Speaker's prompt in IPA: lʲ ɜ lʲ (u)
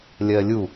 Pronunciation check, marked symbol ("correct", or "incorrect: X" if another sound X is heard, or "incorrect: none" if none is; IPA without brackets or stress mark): correct